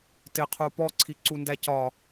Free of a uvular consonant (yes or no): no